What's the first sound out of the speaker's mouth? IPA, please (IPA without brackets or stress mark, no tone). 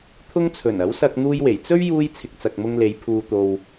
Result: t̪ʰ